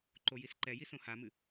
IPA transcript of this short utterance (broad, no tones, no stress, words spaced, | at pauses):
ǃojisǃɛji sõhamɨ